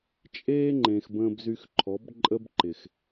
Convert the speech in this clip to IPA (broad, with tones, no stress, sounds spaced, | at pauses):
t͡ʃʼ eː˦ ŋ͡ǃ ẽ˨ x b ə̃ː˧ b z y˧ x ǃʰ ɔ˨˦ b ǃʼ ə˦ b ǃ ɪ˨ x